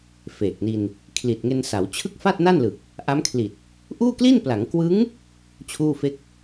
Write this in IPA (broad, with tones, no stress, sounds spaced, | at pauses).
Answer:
f eː˨˩ k̚ n i˧ n | kʰ l i˨˩ t̚ ŋ e˧ n s a˩˦ w t͡ɕʰ ɯ˥˩ k̚ f a˥˩ t̚ n a˥˩ n l ɯ˨˩ k̚ | ʔ a˦˥ m kʰ l i˨˩ t̚ | ʔ uː˥˩ k l i˥˩ n p l a˩˦ ŋ k w ɯ˦˥ ŋ | t͡ɕʰ uː˥˩ f e˥˩ k̚